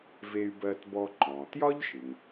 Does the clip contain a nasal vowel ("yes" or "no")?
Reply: yes